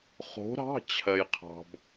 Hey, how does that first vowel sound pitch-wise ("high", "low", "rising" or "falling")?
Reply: rising